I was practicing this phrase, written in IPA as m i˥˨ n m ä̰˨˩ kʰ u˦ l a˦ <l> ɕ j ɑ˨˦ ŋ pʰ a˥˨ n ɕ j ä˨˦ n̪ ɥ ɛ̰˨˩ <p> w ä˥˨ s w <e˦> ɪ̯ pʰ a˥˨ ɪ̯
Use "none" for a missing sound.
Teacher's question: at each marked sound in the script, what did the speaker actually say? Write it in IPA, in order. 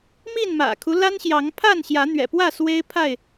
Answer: n, p, e˦

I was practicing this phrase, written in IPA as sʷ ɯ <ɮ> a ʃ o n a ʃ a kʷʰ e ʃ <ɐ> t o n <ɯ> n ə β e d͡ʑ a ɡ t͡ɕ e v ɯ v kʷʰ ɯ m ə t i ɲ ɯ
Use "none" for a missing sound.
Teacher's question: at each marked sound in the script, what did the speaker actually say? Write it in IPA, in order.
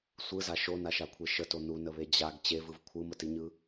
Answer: z, ə, u

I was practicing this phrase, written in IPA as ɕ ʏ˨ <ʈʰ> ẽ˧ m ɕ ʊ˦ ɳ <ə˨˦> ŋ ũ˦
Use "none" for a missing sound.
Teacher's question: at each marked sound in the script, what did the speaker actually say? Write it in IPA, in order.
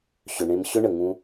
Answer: ɳ, ə˨

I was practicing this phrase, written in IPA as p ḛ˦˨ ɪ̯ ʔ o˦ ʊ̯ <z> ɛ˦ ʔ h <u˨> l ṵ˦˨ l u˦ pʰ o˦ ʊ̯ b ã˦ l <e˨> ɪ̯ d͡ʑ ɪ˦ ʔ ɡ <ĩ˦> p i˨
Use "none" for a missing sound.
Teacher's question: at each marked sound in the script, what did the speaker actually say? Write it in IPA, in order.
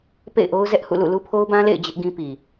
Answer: z, ṵ˦˨, ḛ˦˨, ĩ˦

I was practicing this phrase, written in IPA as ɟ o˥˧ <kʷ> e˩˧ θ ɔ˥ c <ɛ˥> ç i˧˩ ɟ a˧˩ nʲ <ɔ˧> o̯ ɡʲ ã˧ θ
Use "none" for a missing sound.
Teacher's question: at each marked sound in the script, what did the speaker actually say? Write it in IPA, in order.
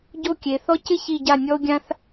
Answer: kʲ, ɪ˥, ɔ˧

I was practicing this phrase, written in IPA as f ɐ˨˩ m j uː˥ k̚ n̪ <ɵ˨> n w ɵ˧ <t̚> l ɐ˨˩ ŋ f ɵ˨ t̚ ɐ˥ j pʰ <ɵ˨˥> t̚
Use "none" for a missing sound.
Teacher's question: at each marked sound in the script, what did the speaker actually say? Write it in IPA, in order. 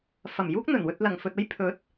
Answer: ɵ˨˩, t̚, ɵ˨˥

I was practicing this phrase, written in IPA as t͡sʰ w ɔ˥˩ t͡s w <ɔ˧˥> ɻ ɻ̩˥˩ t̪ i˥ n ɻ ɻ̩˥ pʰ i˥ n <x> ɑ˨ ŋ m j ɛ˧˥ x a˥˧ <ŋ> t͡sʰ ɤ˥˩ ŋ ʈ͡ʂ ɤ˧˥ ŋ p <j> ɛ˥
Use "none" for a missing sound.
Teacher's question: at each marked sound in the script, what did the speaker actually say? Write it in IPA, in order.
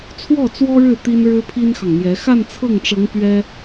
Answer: ɔ˥, x, n, ɥ

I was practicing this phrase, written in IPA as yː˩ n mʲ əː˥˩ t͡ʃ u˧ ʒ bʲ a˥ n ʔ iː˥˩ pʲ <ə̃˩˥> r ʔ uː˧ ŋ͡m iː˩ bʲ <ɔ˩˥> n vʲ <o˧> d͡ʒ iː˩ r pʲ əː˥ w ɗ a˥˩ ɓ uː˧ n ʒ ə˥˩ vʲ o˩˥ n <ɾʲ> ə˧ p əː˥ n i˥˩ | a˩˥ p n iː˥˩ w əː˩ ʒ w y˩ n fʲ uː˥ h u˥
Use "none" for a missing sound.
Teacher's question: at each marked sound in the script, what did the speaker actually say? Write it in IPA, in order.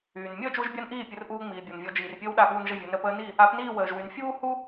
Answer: ə˩˥, ɔ˩, ɔ˧, ɾ

